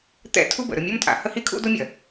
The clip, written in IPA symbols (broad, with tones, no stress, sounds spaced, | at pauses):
t̪ ɛ̰˦ tʰ u˦ b ə̰˨ ɾ ɵ˦˨ mʲ o˦ m tʼ a̰˨ h ə˦ h i˦ kʰ ṵ˦ d o˦ mʲ ɐ˨